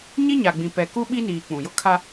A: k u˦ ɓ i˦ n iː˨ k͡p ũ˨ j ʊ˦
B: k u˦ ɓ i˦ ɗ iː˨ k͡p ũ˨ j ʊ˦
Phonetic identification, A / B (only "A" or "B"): A